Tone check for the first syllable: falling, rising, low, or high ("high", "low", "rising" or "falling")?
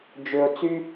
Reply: low